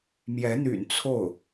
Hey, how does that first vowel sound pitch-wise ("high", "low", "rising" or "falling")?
rising